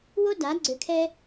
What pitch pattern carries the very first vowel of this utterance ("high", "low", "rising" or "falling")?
high